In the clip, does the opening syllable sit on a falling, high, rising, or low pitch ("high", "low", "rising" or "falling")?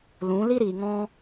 rising